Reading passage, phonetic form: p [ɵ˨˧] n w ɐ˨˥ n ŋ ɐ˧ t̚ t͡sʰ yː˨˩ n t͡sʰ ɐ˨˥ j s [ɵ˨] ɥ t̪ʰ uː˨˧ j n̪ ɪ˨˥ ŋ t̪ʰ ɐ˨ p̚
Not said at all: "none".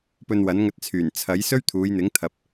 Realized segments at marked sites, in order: ɵ˧, ɵ˥

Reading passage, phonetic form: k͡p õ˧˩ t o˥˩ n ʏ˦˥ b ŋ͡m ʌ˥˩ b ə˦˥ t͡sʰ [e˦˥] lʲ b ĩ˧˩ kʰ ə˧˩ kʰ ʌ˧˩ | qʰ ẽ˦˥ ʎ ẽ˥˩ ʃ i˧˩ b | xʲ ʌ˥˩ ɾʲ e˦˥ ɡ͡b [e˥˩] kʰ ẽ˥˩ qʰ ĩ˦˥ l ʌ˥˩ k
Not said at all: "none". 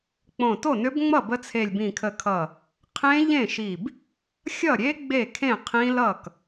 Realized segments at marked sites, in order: e˧˩, e˥˩

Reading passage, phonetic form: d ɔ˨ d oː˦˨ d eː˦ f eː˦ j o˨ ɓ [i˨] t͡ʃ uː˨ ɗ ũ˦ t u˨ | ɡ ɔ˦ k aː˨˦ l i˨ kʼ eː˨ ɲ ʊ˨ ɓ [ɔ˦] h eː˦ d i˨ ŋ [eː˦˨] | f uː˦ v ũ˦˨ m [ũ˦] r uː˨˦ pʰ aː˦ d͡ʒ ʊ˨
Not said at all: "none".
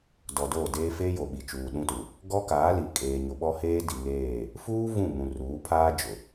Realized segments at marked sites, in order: i˨, ɔ˦, eː˦˨, ũ˨

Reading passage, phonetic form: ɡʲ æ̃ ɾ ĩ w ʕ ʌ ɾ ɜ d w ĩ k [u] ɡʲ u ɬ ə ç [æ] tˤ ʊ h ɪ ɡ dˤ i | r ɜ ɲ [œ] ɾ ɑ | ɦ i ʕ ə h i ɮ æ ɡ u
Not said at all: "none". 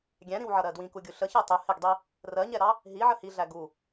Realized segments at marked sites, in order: u, ɜ, ɛ

